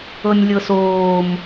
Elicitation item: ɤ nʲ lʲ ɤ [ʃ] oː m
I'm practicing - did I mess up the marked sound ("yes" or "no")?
yes